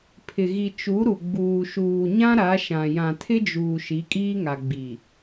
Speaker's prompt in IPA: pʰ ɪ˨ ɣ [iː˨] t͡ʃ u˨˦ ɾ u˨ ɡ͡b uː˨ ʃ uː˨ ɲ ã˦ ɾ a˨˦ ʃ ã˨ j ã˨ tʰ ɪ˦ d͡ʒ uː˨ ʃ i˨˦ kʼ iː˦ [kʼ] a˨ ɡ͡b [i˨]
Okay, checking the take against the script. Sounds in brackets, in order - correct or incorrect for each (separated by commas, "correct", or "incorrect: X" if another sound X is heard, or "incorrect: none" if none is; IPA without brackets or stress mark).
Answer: incorrect: i˨, incorrect: ŋ, correct